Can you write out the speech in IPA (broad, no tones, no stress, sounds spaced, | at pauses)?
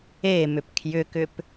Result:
e m ʏ p kʰ j ʏ k ʏ p